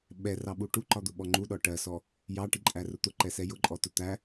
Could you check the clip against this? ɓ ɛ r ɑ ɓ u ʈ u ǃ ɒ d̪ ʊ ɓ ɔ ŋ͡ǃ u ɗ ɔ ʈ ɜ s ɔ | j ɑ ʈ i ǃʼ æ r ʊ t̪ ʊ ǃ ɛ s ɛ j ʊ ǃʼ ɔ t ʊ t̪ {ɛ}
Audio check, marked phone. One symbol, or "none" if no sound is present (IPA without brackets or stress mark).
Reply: æ